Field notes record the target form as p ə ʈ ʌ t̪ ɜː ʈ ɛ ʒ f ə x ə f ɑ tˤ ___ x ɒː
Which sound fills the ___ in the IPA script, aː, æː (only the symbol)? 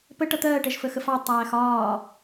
æː